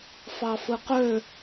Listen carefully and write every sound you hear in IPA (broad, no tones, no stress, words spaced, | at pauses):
fɑfɯqø